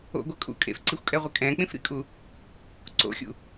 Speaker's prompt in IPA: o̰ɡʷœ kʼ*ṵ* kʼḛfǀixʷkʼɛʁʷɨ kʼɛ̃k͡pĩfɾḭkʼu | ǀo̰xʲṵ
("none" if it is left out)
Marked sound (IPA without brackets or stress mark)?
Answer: ṵ